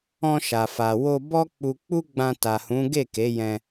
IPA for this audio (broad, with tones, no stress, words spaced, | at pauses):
ɔ̃˧ʃa˨fa˨ wo˧bɔ˦ k͡pu˧ k͡pu˦ɡ͡bã˧ta˨hũ˨˦ ɡe˦˨ke˨˦jɛ̃˧